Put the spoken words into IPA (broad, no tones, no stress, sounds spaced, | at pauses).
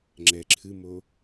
ŋ͡ǁ ɛ ǁʰ ɨ m o